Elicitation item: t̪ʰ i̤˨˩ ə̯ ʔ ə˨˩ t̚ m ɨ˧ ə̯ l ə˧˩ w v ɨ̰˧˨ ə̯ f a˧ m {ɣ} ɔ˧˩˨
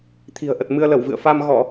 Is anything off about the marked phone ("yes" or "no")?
no